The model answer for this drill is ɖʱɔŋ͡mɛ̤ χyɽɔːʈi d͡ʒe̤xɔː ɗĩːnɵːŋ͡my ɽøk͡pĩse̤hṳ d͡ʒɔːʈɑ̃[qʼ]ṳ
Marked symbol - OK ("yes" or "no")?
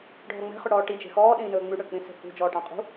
yes